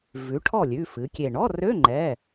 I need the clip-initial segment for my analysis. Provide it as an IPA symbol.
v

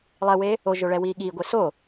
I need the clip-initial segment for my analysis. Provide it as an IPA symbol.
lˠ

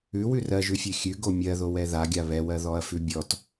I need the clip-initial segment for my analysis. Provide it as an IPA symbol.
ʉ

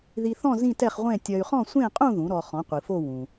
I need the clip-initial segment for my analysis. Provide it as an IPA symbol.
ð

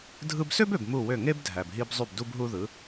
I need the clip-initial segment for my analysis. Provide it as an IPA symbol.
dʱ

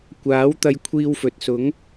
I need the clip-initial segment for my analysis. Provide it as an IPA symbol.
kʷ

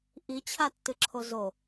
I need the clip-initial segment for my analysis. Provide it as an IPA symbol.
ʔ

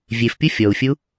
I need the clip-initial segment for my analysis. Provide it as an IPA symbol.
vʲ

